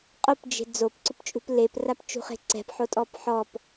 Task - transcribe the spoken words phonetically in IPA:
qʼopd͡ʒe̤ d͡zopǀʊpt͡ʃʼṳp leprapt͡ʃṳχe̤ ǀɛ̤pħotʼɔp ħɔp

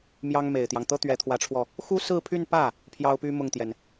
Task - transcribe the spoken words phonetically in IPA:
mjɑ˥ŋme˨˩ɪ̯t̪jɑ˦ŋ t̪ɤ˥t̪ɥɛ˧˥t̪ʰwä˧˥ʈ͡ʂʰwɔ˧ | xu˥sɹ̩˥˧pʰy˥˧npä˥˩ | pʰjɑ˥ʊ̯py˥ mʊ˥˩ŋt̪jɛ˩n

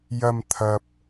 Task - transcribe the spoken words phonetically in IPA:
jɐ˧m t̪ʰɐ˨p̚

